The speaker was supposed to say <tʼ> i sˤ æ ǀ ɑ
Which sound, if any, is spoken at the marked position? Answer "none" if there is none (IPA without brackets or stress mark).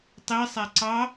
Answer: tˤ